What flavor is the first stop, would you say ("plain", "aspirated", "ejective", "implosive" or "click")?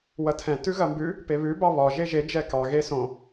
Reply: aspirated